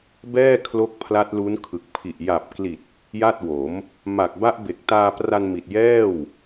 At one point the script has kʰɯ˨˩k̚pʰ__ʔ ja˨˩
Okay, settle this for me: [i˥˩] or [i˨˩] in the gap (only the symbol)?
i˨˩